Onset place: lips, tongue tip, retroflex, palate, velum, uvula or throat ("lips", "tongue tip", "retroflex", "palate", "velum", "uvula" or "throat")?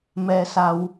lips